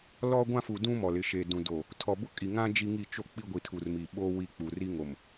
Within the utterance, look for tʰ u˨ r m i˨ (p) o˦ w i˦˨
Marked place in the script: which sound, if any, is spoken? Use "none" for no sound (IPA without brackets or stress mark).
ɓ